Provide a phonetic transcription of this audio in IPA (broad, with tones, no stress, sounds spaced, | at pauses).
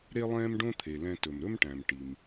ɾ e˥ lˠ ɛ̃ː˥ m ɖ õ˥ t̪ʰ e˩ l ɛ̃˧ t ɵ˩ m ɾ ɵ˥ m ʈ æ̃˩ m ʈ i˩ m